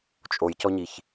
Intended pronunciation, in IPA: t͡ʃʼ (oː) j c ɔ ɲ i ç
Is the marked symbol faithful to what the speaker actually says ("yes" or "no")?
no